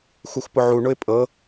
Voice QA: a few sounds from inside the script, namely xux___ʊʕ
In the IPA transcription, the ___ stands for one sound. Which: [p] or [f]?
p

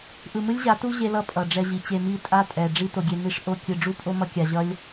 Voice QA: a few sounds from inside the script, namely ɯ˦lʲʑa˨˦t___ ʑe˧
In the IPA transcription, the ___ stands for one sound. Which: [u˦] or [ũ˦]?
u˦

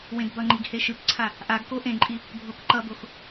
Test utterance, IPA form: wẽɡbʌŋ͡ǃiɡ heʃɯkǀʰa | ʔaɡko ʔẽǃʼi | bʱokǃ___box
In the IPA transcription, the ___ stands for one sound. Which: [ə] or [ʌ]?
ʌ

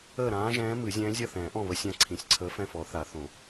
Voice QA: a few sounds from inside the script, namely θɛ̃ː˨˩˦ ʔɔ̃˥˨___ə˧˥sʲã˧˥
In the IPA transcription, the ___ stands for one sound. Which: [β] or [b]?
β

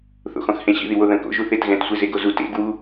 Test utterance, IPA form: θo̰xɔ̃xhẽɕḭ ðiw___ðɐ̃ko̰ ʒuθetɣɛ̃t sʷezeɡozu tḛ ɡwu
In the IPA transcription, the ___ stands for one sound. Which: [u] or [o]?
o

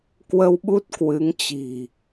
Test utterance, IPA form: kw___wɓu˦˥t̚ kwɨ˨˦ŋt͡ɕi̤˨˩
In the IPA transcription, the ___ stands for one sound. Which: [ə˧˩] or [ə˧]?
ə˧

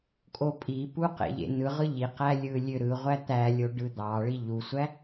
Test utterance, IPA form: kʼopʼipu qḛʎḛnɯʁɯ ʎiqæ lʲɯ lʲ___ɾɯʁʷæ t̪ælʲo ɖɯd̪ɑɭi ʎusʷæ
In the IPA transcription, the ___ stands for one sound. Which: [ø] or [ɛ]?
ø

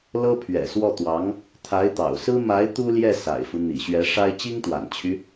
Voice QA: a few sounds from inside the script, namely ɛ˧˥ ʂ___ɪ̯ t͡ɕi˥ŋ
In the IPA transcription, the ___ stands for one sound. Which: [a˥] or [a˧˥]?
a˥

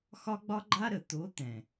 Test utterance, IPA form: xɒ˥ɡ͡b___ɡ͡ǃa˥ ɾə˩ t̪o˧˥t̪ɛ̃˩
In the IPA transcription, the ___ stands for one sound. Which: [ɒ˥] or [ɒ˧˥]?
ɒ˥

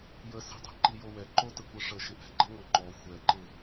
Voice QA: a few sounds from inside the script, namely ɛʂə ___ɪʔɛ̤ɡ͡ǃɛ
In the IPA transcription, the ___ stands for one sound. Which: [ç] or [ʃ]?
ʃ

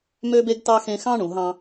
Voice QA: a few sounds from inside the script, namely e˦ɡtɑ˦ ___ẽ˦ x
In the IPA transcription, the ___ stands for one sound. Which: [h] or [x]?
x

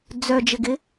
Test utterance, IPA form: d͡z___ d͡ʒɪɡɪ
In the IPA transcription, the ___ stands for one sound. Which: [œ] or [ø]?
œ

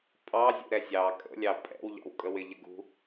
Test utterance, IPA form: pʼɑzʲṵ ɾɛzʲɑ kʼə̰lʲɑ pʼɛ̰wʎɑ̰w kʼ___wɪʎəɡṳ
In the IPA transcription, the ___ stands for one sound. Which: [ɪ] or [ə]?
ə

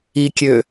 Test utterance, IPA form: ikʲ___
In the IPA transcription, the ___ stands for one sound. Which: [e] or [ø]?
ø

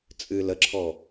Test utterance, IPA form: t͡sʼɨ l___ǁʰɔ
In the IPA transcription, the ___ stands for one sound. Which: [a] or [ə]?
ə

